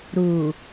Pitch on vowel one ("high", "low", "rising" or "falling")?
low